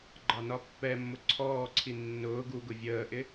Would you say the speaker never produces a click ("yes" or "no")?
no